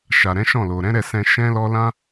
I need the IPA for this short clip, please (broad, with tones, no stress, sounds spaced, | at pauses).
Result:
ʃ a˨ ɾ ɛ̃˨˦ ʃ ɔ̃˦˨ l o˨ ɾ ɛ̃˨˦ ɾ ɛ˦˨ s ɛ̃˧ ʃ ɛ̃˦ l ɔ˦ l ã˦